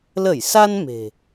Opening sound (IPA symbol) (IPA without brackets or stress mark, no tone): l